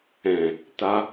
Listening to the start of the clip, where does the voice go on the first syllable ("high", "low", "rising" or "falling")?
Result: low